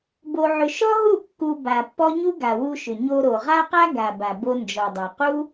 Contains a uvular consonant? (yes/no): yes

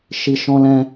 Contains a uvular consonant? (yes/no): no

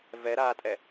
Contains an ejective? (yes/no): yes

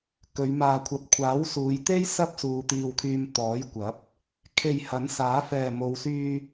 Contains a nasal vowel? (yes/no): no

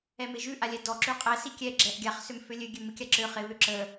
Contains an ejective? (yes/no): yes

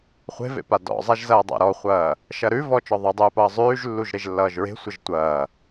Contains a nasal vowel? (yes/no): no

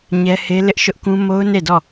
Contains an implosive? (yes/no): no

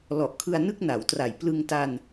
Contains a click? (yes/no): no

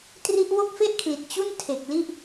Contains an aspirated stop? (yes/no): yes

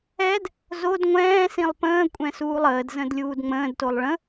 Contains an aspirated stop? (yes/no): no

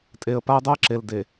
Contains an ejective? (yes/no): yes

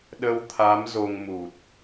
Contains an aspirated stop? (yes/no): yes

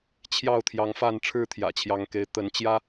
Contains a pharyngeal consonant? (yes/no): no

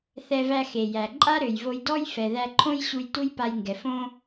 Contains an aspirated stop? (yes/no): yes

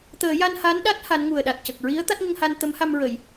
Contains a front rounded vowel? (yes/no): no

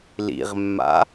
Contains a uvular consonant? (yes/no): yes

